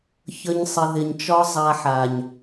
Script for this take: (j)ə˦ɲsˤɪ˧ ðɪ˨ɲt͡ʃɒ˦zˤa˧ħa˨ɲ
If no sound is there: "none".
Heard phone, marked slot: ç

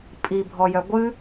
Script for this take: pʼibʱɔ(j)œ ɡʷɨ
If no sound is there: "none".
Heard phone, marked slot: j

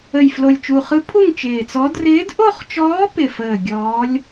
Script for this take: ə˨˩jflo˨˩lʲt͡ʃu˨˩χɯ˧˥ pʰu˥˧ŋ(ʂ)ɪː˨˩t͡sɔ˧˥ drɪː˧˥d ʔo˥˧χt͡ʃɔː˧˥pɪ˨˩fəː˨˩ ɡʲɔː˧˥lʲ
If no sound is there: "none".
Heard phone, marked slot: t͡ʃ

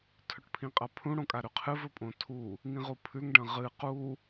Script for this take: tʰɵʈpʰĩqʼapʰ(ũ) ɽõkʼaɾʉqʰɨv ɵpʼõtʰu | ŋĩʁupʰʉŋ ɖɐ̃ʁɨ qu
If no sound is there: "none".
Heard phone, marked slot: ũ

